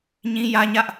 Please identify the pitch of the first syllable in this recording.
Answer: high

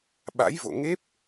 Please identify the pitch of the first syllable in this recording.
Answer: rising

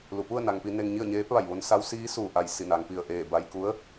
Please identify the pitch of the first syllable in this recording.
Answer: low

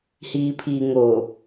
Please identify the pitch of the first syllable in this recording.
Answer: low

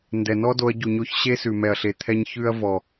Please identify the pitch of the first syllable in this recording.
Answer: low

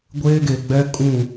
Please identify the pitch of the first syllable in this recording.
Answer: high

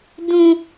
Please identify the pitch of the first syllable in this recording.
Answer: high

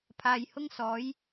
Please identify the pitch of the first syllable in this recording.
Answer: low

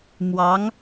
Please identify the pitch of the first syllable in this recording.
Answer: rising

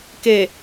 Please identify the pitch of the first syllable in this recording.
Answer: low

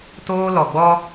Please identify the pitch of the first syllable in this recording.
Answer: high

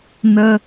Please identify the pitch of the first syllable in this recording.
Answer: high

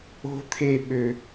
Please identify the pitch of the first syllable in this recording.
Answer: high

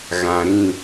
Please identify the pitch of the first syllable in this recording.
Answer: low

